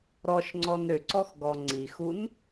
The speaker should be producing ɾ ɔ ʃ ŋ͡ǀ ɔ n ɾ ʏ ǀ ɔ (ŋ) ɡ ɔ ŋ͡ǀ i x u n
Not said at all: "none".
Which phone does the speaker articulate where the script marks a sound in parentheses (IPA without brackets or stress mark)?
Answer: x